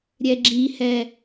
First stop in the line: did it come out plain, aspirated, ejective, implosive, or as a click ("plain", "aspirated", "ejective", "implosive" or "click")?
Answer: click